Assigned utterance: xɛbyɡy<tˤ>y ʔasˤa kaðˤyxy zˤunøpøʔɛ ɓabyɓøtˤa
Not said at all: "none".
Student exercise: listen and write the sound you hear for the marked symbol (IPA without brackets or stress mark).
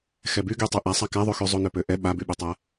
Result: tˤ